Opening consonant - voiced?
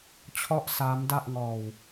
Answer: no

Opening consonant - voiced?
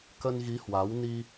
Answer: no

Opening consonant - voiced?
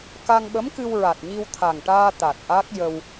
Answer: no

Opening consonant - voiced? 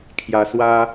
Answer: no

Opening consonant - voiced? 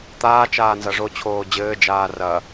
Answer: no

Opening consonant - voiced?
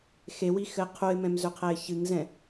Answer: no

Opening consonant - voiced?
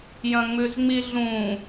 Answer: yes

